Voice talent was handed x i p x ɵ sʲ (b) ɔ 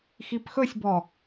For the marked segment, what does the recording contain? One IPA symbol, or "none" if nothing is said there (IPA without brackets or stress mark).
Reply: b